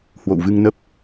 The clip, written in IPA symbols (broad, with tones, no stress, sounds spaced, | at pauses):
h w o̰˧˨ w v ɨ˧ ŋ n ə˦˥ p̚